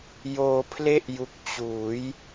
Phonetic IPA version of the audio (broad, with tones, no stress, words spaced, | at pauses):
joː˧pʰle˥˩ʔju˨˩k̚ t͡ɕuː˩˦j